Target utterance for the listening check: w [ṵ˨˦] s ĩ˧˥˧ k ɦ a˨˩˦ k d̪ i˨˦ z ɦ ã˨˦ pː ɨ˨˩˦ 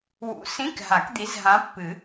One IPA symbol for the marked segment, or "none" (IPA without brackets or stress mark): ṵ˨˦